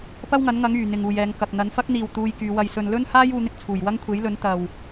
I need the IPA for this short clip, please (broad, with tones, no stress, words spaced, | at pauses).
pɐ˥wŋɐ˨˥nŋɐ˨˥ŋ yː˨˩ n̪ɪ˨ŋuː˨jɛː˨˧ŋkɐ˨k̚ n̪ɐ˨˧nfɐ˥k̚n̪iː˨w t̪uː˧jkyː˨˧ wɐ˨jsɵ˨nlɵ˥nhaː˥j uː˧n̪ɪ˥k̚ t͡sʰuː˨˩jwɐ˥ŋ kʷʰe˨˥jlɵ˨˥n t̪ɐ˨w